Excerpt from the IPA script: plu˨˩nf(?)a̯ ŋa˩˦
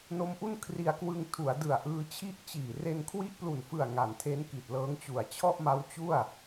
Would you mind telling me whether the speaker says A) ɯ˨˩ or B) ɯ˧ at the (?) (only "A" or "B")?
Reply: A